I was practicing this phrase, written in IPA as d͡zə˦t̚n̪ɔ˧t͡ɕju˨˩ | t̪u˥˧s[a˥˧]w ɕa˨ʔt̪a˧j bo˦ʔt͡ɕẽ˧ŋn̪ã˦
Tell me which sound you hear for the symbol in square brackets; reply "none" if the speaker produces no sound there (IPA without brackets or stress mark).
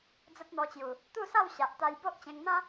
a˥˧